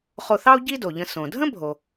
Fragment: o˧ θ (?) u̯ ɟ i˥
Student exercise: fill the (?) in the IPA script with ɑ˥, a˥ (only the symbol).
ɑ˥